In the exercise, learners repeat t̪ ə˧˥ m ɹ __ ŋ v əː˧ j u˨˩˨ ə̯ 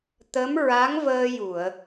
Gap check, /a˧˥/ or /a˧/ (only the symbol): a˧˥